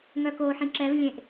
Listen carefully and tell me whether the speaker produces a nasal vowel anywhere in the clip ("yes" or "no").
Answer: yes